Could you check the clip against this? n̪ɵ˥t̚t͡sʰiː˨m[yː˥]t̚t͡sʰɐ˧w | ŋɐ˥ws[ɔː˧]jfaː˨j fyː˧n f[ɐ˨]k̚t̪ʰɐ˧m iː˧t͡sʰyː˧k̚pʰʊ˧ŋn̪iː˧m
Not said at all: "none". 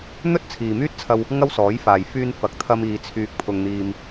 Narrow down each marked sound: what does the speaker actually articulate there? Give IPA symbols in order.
yː˥, ɔː˨˥, ɐ˨

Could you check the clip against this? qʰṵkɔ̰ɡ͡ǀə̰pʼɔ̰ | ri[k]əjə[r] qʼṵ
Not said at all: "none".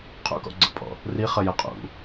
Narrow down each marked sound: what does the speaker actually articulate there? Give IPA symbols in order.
χ, none

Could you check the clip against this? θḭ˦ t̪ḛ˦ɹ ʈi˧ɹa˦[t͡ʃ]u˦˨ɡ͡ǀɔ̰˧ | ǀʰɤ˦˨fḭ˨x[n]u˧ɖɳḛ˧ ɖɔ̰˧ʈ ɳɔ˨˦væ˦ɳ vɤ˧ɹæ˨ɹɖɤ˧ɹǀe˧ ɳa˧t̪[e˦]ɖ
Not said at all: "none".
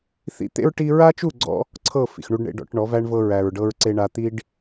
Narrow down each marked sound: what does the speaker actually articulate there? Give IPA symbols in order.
t͡ʃ, ɳ, i˦

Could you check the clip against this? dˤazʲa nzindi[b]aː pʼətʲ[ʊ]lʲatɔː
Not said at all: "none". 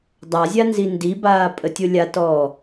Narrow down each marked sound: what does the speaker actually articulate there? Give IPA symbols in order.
b, ʊ

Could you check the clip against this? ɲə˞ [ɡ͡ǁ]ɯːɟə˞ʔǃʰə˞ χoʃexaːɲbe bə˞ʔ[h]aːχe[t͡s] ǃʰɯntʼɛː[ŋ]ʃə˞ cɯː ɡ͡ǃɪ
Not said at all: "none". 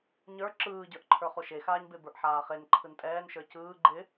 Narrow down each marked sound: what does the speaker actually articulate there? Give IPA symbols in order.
ǁ, ħ, n, n

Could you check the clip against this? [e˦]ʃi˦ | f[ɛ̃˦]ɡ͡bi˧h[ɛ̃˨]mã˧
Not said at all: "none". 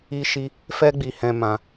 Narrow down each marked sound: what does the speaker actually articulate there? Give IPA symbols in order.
i˦, ɛ˦, ɛ̃˧

